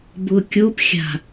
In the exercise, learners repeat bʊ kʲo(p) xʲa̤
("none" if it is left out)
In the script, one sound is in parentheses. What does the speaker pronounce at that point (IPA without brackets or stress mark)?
p